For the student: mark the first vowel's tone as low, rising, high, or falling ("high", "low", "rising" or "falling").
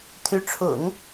rising